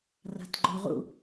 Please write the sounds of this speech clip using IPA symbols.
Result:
r a̤ t ɡ͡ǃ o ʁ ṵ

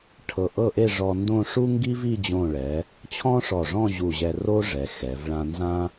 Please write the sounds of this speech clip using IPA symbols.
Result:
ʈʰ ɤ˧˩ ʔ ɤ˥˧ ʔ e˥˧ ʐ ɔ˧ n d õ˥˧ ʂ u˥ ŋ ɡ i˥ v i˥˧ d͡ʑ õ˧˩ ɭ ɛ˩˧ | t͡ɕʰ ɔ̃˥ ʂ ɔ˧˩ ʐ ɔ̃˥˧ ʑ u˧˩ ʑ ɛ˧ r o˥ ʐ ɛ˩˧ x ɛ˩˧ v ɭ ã˧ n z ã˥

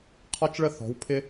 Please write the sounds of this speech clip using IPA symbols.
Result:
qʰ ɒ˥ t͡ʃ ɭ ə˥˧ θ ɔ̤˨˦ w pʰ ɪ˥

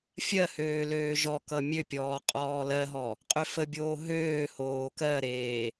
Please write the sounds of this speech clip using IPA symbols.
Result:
fʲ ɜ h øː l øː ʒ ɔ k ʌ mʲ ø pʲ ɔː qʼ ɔː l ɜ ɦ ɔ | qʼ ø f ə bʲ oː ɦ øː h oː k ɜ ɾ eː

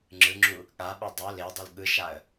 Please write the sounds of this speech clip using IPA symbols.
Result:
ŋ͡ǁ ɯ ŋ͡ǁ u | ɠ a ɓ ɯ dˤ o l e dˤ ɯ l ɠ ɯ ʃ a ə̯

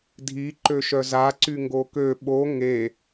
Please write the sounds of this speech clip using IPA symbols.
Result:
dʱ i ǃ ø ʃ œ z a ǀ y ŋ ɡ o k ø ɓ o ŋ e

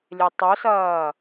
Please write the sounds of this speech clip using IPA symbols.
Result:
lʲ e tˤ ɵ s ɐː

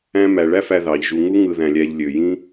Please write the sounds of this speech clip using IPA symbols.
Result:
æ̃˦ m æ˩ ɭ æ˦ f æ˨ ð ɑ˩ ʎ ʒ u˨ ŋ u˥ ŋ ɯ˨ ð æ̃˩ lʲ æ˨ ʎ lʲ ø˩ j ĩ˦

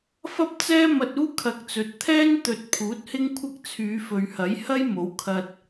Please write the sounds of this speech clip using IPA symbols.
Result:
f ɐ˥ p̚ t͡s ɛː˥ m ɐ˧ t̚ uː˥ kʰ ɐ˨˥ k̚ t͡s ɵ˨˥ t̚ t̪ʰ ɛː˥ n t̪ ɵ˨ t̚ pʰ uː˨˥ t̚ h ɪ˥ ŋ kʷʰ ɐ˥ k̚ t͡sʰ yː˨˧ f ɵ˨ ɥ h ɐ˨˥ j h ɐ˥ j m o˨˥ w kʰ ɐ˧ t̚

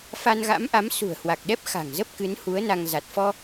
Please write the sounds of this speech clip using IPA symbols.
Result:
f a˧ n ɣ a̰˧˥ m ʔ a˨˦ m s ṳ˨˩ ə̯ h w a˨˩ k̚ ɗ ɛ˦˥ p̚ x a̤˨˩ ŋ z ə˦˥ p̚ k ɨ˨˦ n h u˨˦ ə̯ n a˧ ŋ z a˨˩ t̚ f ɔ˧

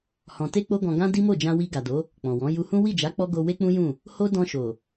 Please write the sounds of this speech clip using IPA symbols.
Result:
h ɔ̃˨ t e˧ k͡p o˦ ɡ ɔ̃˧ ɡ ã˦ d i˦ m o˦˨ d͡ʒ ã˧ w i˧ ɡ a˨ d o˨˦ | k͡p ɔ̃˨ w ɔ̃˨˦ j u˧ h ũ˦ w i˦˨ d͡ʒ a˨˦ k͡p ɔ˧ ɡ o˧ w e˦ k͡p ũ˦ j ũ˦˨ | h o˦ d ɔ̃˧ ʃ o˨

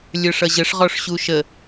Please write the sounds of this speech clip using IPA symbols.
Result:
lʲ ə˞ ʂ ʌ ʑ ə ʂ ʁ ɔ ʂ ɕ u ʃ ə

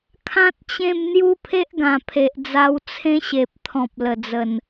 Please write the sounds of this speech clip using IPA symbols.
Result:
kʰ ã˦ t̚ t͡ɕ ẽ˥˧ m n̪ j u˦ pʰ e˦ ʔ ɡ ã˨˩ pʰ e˨ ʔ d͡z a˧ w t͡sʰ ẽ˦ ɕ e˨ p̚ t̪ʰ ɔ̃˨ p̚ l ə˨˩ d͡z ə˨˩ n

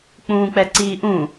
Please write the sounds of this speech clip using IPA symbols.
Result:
k͡p ũː k͡p ɛ ǀ iː ʔ ũː

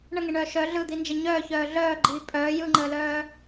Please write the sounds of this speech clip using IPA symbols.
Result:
ɳ ə ŋ e ɳ œː ʃ œ ɮ ɯ d̪ i n d͡ʒ e ɲ œː ç œː ɮ œː ɡ͡ǃ iː pʼ œː j ɯ ŋ͡ǃ əː l œː

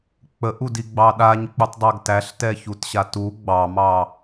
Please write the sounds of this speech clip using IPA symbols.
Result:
k͡p ə ʔ u d i ɡ͡b ɑ ɗ a ɲ k͡p u tˤ dˤ a ɡ t æ ɬ t ɛ ç u t ɕ a t u ɡ͡b ɑ m ɑ

